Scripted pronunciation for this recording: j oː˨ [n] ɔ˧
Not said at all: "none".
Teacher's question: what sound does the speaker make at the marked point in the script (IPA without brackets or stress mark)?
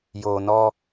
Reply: n